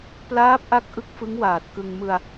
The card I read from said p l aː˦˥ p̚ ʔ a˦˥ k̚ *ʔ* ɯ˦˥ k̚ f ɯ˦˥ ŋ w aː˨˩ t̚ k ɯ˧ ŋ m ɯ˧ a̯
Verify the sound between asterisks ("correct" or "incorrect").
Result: correct